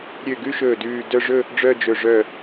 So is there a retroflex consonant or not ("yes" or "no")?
yes